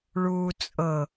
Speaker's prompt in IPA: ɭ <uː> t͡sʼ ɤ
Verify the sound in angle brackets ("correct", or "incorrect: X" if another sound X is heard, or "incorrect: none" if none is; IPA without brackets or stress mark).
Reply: correct